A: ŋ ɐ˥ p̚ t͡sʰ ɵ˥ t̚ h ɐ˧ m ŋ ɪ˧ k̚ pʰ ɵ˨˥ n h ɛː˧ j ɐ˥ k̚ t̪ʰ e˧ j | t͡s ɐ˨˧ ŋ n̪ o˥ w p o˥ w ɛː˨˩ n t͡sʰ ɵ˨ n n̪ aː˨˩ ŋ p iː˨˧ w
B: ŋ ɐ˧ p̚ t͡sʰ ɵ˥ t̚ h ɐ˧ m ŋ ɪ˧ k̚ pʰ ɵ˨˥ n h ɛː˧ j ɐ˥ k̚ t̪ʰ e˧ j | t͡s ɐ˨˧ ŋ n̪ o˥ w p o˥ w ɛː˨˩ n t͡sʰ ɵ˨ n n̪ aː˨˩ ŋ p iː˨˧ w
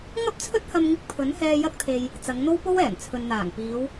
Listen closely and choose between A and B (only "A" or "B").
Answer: A